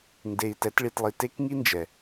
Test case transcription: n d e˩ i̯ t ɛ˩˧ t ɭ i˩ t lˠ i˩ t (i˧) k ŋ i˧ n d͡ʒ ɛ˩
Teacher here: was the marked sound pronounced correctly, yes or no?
no